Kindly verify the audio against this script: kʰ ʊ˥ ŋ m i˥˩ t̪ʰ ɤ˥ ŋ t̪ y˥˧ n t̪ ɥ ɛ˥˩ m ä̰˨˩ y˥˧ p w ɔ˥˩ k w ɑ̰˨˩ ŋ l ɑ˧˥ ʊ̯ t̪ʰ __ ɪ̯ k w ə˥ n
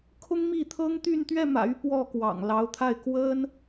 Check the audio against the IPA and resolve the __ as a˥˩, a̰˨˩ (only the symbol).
a˥˩